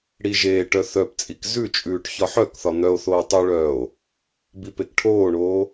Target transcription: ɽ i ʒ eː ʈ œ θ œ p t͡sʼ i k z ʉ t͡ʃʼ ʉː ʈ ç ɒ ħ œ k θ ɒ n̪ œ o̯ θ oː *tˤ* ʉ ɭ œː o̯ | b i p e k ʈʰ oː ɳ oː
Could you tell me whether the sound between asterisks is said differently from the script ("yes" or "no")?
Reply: no